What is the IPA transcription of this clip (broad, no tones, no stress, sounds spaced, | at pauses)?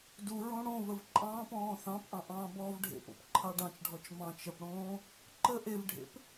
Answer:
d u ɹ õ ɽ õ v ə v ǃʼ ɑ̃ː p ɔ̃ː θ ɑ̃ p ʔ ɑ̃ ʔ ɑ̃ː b ɔː v ɖʱ ḛ p o̰ p ǃʰ ɑ ɖ ɑ̃ t͡ʃ ɖʱ ɔ t͡ʃ m ɑ̃ t͡ʃ ə p ɽ õː | ǃ ə ʔ e v ɖʱ ḛ p